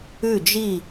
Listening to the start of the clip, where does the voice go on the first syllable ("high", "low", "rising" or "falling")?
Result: falling